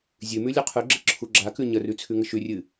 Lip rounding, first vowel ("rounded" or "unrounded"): rounded